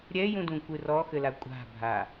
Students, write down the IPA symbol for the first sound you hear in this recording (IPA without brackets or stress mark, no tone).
ɾʲ